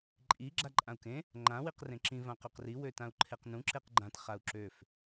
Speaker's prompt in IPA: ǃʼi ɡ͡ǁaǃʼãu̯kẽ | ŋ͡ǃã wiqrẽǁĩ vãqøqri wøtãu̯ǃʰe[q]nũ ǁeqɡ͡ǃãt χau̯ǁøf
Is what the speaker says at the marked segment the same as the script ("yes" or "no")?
yes